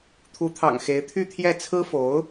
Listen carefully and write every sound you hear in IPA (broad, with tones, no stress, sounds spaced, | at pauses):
t̪ʰ u˧˥ t̪ʰ ɑ̰˨˩ ŋ x e˧˥ ɪ̯ t̪ʰ y˥˧ t̪ʰ j ɛ˥˩ t͡sʰ ɹ̩˥ f o˧˥ ʊ̯